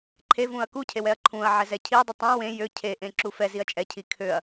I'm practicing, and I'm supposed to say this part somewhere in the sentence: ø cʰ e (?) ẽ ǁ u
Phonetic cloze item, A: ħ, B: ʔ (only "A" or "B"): B